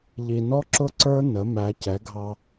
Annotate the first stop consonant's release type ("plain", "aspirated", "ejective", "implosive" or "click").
click